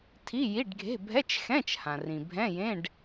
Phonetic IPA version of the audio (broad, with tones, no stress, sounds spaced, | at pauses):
tʰ i˧˥˧ j i˧˥˧ ɖ ɡʱ e̤˧˥˧ bʱ ɛ˧˥˧ t͡ʃ x ɛ̃˧˥˧ t͡ʃ h ã˩ r ĩ˩ bʱ ɛ̃˧˥˧ j ẽ˧˥˧ ɖ